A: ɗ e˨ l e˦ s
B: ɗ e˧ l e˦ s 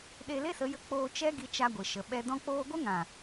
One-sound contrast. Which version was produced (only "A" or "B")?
B